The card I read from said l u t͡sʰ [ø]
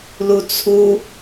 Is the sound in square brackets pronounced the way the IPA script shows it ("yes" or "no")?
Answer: no